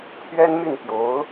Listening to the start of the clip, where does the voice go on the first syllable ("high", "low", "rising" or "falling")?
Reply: high